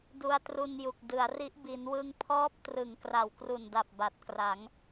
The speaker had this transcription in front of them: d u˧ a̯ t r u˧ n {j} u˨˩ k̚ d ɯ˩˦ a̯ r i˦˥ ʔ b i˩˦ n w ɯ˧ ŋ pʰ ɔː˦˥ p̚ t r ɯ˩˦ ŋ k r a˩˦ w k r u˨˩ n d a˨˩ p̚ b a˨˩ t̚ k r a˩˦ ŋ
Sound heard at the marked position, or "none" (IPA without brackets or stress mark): j